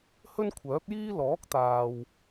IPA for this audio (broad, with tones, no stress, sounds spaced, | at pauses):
h ɵ˥ n kʷʰ œː˨˥ p̚ j iː˥ l ɔː˨˥ k̚ t̪ aː˨ w